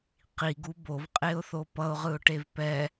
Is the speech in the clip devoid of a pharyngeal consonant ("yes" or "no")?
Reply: yes